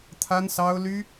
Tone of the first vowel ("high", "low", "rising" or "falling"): high